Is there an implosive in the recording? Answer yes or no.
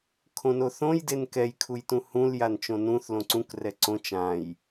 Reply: no